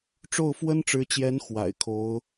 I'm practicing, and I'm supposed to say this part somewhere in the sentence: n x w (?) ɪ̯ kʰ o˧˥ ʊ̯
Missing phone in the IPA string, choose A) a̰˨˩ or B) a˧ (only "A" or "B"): A